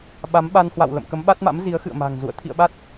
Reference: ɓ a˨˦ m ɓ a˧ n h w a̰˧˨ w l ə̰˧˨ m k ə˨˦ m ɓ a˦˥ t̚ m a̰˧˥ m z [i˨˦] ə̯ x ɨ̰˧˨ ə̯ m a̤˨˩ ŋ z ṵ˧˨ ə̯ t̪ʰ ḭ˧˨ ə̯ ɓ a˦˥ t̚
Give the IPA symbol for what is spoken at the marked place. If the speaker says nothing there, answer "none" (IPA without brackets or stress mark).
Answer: i˨˦